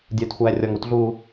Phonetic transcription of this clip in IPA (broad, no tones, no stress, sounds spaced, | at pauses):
dʲ ə˞ t xʷ æː rʲ ɔ ŋ u t ɮ uː